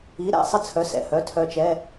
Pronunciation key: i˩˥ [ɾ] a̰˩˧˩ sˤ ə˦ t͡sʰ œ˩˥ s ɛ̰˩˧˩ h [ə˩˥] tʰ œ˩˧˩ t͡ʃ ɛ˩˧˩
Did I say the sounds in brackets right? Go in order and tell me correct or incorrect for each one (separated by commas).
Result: correct, incorrect